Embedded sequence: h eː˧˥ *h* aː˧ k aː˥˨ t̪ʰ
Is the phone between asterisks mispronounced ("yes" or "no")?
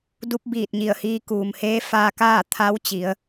yes